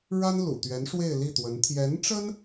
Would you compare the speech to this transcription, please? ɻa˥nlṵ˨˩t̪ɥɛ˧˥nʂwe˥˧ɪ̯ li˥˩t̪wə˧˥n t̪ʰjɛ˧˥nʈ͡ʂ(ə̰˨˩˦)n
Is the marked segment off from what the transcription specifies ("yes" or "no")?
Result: yes